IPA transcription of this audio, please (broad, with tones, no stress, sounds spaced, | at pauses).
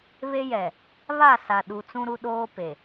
β e˦ j ɛ˨ | β a˦˨ s a˨ ɗ u˨ t͡s ũ˦ ɾ u˦ ɗ oː˦ p e˨